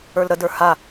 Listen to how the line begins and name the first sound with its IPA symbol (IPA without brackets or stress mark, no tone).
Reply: ə˞